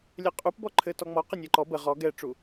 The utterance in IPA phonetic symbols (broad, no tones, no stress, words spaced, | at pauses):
lʲɛqʼupbɔ ǃʰɘtɔŋ͡mɔ qənʲɛǃɔ bə ʁɔ ɡɛʈ͡ʂu